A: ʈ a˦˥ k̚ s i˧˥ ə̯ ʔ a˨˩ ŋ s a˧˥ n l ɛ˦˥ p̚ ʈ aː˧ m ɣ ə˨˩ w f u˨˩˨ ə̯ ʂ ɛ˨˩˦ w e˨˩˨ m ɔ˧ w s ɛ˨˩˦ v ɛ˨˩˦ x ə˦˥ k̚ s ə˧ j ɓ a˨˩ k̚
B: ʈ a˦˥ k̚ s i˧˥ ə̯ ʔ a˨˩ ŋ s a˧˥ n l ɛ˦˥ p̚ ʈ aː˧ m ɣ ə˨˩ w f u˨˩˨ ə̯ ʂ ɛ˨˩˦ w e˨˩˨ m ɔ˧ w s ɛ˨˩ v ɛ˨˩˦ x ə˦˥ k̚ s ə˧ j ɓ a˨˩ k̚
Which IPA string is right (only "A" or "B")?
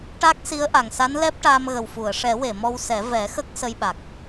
A